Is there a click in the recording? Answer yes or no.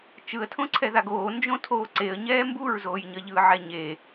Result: yes